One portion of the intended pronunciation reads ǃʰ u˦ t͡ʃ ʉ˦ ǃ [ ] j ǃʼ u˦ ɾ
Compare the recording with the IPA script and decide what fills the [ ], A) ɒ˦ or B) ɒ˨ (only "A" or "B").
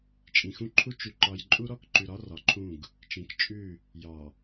A